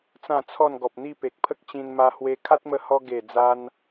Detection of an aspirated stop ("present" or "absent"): present